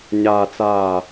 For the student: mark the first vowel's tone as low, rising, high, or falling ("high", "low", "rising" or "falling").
low